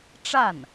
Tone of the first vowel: falling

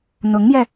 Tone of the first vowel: rising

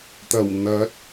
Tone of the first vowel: low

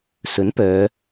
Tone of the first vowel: rising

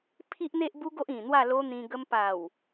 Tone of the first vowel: high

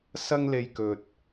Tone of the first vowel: high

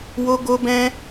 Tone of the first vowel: high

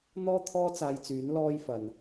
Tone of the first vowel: high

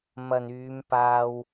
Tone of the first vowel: low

